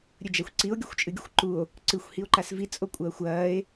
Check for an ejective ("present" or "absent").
present